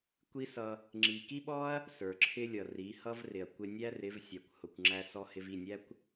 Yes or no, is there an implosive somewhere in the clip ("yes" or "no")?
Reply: yes